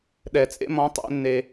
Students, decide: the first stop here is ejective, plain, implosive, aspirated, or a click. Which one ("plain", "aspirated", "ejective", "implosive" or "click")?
implosive